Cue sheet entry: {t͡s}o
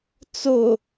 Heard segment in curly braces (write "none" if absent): t͡s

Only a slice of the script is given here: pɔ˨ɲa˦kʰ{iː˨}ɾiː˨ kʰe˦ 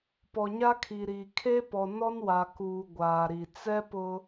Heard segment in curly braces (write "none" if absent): i˨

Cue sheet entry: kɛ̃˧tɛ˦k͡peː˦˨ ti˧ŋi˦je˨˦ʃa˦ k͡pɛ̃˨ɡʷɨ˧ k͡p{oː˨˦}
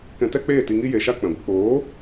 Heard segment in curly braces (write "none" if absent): oː˨˦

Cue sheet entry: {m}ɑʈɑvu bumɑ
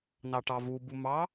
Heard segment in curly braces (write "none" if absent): n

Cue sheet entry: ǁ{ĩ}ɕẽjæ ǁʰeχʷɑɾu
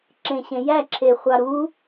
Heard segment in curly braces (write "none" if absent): ẽ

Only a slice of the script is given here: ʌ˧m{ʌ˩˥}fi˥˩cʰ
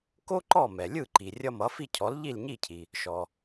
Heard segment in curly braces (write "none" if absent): ʌ˩˥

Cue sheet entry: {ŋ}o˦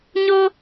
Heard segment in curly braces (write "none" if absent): ɲ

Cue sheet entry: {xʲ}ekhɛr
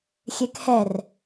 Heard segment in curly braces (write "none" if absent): xʲ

